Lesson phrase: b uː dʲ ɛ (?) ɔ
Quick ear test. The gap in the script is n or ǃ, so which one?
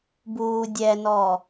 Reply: n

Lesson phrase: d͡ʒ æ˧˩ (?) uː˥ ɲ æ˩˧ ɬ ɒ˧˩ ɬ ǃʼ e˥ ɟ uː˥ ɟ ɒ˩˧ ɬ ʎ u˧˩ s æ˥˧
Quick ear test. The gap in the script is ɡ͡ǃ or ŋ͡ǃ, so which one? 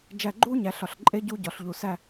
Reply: ɡ͡ǃ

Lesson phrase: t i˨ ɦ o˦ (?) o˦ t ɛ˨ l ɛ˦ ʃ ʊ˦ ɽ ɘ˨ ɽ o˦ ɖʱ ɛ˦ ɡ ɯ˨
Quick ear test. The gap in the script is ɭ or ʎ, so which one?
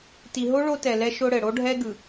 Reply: ɭ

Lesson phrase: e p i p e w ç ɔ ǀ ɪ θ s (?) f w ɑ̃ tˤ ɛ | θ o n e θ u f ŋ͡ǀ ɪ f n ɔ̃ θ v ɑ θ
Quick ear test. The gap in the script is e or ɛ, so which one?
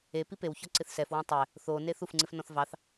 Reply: ɛ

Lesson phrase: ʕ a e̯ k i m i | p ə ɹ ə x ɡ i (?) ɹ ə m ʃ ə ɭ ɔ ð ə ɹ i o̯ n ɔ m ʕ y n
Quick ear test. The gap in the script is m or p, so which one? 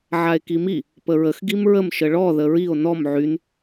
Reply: m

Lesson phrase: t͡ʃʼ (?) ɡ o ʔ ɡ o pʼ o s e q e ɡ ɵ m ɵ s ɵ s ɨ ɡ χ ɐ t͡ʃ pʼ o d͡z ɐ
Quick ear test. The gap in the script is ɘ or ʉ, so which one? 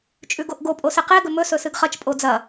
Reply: ʉ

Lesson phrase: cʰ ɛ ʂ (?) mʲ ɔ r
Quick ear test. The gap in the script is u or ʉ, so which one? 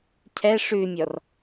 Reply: ʉ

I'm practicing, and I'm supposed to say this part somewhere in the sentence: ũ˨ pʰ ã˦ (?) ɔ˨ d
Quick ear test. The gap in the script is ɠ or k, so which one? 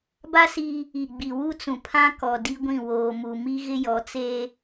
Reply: k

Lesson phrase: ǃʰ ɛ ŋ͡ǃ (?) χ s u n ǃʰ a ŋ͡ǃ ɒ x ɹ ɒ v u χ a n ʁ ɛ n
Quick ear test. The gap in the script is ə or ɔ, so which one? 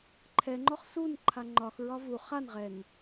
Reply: ɔ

